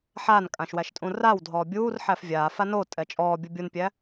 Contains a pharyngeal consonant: yes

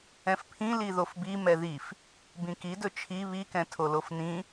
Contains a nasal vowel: yes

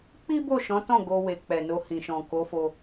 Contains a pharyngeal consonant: no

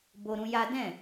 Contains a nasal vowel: yes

